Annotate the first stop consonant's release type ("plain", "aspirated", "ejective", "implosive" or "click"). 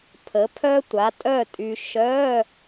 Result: aspirated